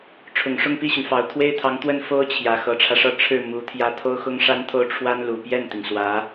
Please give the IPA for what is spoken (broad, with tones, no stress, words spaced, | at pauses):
ʈ͡ʂʰʊ˨˩ŋʂʊ˥˧ŋpi˥˩ɕy˩n fɑ˨˩ʊ̯t̪ʰwe˥ɪ̯t̪ʰɑ˧˥ŋ t̪wə˥˩n fo˥ʊ̯t͡ɕʰjä˨˩ xɤ˧˥ʈ͡ʂʰä˧ʂɤ˥˧ ʈ͡ʂʰɻ̩˥˩ mu˧˥t̪ʰjä˥˩ t̪ʰo˥ʊ̯xʊ˥ŋʂa˥nt̪ʰo˥˩ʊ̯ ʈ͡ʂʰwa˥nlu˨˩ pjɛ˥˩nt̪i˩ŋswä˧˥